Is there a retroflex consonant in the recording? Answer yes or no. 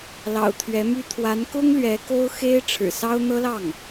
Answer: yes